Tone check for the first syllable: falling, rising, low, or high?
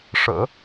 low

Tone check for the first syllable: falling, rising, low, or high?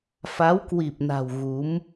rising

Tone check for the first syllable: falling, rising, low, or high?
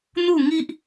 falling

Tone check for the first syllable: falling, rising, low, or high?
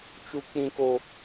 high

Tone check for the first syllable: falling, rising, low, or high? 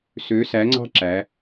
rising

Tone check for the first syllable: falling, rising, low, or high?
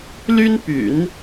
high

